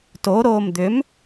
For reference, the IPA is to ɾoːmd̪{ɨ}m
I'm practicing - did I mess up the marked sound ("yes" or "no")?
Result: yes